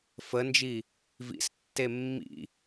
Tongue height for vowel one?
mid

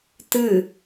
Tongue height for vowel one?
high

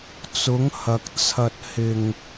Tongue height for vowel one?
high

